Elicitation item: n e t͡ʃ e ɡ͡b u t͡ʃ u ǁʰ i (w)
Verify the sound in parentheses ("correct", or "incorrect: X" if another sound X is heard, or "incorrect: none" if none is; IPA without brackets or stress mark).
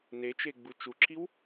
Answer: correct